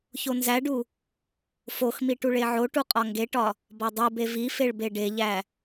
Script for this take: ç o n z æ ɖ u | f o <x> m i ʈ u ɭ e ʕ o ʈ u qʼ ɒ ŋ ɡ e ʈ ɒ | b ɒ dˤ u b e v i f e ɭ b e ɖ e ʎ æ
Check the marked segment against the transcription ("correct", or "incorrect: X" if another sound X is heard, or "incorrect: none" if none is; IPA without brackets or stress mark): correct